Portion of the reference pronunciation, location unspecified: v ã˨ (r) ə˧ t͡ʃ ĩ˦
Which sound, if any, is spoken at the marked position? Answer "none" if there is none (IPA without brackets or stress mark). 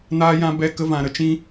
ɾ